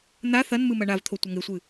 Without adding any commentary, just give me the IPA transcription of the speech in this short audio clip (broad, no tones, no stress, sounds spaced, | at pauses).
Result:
n̪ a θ ɐ n m ɨ m ɐ ɳ a v t̪ʰ o tʷ ɐ ŋ e sʷ ɨ